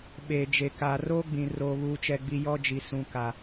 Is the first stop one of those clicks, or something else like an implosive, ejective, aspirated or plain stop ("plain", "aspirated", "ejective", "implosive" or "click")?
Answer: implosive